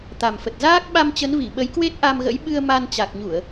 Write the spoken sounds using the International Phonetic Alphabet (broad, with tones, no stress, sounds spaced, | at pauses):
t̪ a˨˩ m f ə˨˩ t̚ z aː˦˥ k̚ ɓ a˧ m t͡ɕ ə˨˦ n v i˧˩ ɓ ə˨˦ j k w e˦˥ t̚ ʔ a˧ m ɣ ə̰˧˥ j ɓ ɨ˧ ə̯ m a˧ n t͡ɕ a˨˩ k̚ ɲ u˧˩˨ ə̯